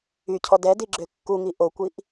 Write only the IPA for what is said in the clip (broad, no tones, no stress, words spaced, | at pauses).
ycʰɔ dɛdiɡ͡ǁø kːuŋi ʔokʷiʔ